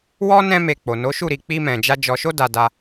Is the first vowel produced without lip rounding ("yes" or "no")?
no